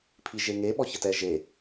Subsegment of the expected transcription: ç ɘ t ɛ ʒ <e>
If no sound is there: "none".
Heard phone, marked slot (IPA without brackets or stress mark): e